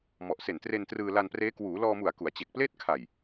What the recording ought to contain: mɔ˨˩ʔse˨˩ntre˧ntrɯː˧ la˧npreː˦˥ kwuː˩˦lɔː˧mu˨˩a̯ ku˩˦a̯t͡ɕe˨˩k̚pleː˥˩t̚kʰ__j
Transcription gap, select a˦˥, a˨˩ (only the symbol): a˨˩